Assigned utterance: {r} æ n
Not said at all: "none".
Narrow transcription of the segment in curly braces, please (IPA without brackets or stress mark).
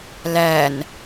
l